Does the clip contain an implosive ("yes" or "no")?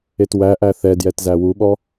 yes